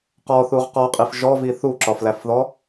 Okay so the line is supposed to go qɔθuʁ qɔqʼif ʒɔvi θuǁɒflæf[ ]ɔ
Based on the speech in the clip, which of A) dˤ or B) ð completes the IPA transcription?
B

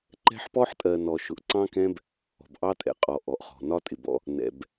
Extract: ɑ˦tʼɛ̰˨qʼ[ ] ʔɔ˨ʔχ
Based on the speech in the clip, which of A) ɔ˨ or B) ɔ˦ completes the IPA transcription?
A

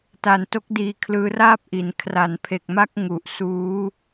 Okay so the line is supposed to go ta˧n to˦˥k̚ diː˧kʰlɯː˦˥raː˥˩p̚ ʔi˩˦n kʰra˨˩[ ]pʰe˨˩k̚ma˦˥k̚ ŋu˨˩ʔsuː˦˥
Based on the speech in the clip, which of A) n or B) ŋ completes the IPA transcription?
A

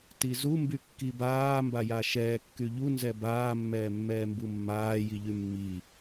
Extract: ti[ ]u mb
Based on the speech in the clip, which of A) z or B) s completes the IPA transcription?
A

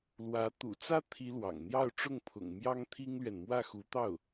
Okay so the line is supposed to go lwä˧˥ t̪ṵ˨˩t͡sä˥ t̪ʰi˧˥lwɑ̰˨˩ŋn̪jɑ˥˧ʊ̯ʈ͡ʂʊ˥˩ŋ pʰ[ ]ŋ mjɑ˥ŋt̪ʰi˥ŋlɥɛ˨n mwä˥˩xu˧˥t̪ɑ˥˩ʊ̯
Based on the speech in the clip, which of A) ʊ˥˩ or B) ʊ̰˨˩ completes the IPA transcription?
B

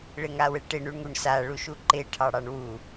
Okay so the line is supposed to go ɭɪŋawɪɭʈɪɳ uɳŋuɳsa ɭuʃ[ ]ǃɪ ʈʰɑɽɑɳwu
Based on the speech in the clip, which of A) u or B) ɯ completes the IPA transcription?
A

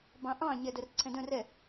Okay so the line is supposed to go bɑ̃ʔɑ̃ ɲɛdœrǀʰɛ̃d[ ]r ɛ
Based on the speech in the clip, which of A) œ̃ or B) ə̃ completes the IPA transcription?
A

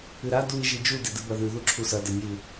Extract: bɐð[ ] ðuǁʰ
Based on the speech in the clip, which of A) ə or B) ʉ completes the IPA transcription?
B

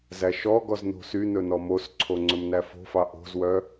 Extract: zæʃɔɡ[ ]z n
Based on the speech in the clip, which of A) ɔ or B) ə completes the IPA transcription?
A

